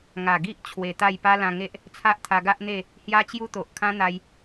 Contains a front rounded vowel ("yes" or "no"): no